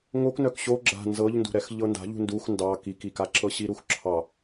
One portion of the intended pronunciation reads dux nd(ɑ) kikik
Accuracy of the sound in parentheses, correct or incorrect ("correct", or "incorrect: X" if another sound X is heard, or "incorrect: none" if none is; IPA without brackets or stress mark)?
correct